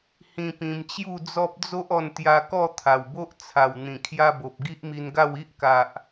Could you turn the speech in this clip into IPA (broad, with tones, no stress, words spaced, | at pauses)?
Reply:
hĩ˧pĩ˧mt͡ɕju˥˧d͡zɔ˦p̚ d͡zo˦ʔɔ˧n t̪ja˧kɔ˥˧ t̪ʰa˨˩wbo˦ʔ t͡sʰa˨˩w n̪ĩ˨˩kʰja˧bo˨p̚ ɡi˦ʔmi˧nɡa˥˧w i˦ʔka˨ʔ